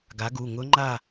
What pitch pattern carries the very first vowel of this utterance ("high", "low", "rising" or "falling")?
rising